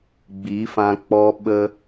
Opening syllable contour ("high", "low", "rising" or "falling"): rising